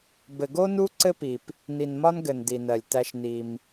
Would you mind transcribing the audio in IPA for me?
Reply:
b ɘ˨ ɡ o˦ n u˦ ǀ ɘ˦ p i˨ p | n i˨ n m ɒ˦ n ɡ ɘ˨ n d i˨ n ɜ˨ lʲ t æ˦ ʃ n i˦ m

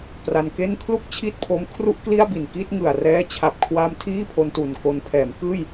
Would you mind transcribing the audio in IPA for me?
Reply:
p r a˧ n k e˥˩ n kʰ l u˥˩ k̚ t͡ɕʰ i˥˩ t̚ pʰ o˦˥ m kʰ r u˥˩ ʔ k l i˥˩ a̯ b i˨˩ n k i˥˩ t̚ ŋ ɯ˨˩ a̯ r ɛː˦˥ t͡ɕʰ a˨˩ p̚ kʰ w a˧ m tʰ iː˥˩ pʰ o˧ n t u˨˩ n k o˧ n pʰ ɛː˩˦ m k ɯː˥˩ j

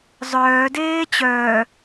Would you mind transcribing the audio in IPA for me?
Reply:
zˤ œː d eː t͡ɕ œː

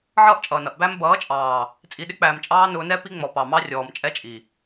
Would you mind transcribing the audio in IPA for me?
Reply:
ʕ ʌː˦ ʔ t͡ʃʼ ʌː˨ n ʌ˨ ʔ b æ˦ m b ʌː˨˦ t͡ʃʼ ɑː˨ | t͡sʼ i˨ ɗ ɪ˦ k͡p æː˨ m t͡ʃʼ ɑː˦ n ʊː˦ n ɛ˦ p i˦ ŋ͡m ɔ˨ p ɑ˨ m ɑ˦ rʲ ɔː˨ m t͡ʃʼ ɛ˦ t͡ʃʼ i˨

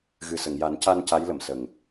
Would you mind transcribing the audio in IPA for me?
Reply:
ɣ ɨ˨˩ s ə˨˩˨ ŋ j a˨˩˦ n c a˧ n c a˧˥ j l ə˨˩˨ m s ə˨˩ ŋ

